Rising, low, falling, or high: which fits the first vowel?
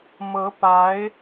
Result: rising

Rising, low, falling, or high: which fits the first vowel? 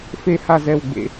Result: high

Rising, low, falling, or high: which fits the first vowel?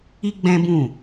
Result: high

